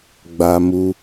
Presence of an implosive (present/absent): absent